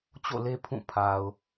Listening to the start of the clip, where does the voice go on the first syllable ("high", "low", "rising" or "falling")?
falling